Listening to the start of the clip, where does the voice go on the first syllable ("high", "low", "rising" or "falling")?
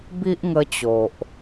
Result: high